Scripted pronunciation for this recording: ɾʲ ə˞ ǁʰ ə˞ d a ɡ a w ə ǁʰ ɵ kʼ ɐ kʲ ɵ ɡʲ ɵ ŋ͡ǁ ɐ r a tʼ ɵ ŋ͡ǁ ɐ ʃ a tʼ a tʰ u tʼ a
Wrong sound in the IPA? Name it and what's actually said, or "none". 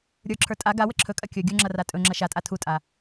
d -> tʼ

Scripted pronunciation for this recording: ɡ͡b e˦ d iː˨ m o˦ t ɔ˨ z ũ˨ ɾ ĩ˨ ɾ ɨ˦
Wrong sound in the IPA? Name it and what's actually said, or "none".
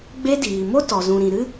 none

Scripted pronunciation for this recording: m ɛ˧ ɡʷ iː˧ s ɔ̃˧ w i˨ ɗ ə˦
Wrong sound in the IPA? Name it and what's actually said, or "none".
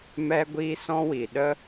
none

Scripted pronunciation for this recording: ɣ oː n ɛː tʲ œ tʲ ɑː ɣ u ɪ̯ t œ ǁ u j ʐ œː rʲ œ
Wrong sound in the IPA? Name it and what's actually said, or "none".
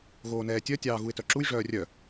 none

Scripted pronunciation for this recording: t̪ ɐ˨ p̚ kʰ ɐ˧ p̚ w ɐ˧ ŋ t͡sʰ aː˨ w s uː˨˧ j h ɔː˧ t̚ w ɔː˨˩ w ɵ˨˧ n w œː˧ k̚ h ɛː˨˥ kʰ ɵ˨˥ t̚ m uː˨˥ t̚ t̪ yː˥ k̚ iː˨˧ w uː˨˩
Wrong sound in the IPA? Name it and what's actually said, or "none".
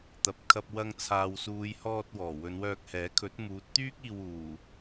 iː˨˧ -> iː˧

